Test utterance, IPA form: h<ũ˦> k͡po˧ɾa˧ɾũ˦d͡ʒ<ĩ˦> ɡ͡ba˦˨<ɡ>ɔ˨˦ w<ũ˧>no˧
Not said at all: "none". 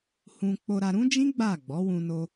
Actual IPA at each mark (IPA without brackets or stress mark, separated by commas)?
ũ˧, ĩ˦, ɡ͡b, ũ˧